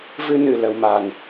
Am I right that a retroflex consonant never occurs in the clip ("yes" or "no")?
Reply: yes